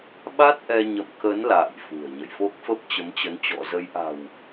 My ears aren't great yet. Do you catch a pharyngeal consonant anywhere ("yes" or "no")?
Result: no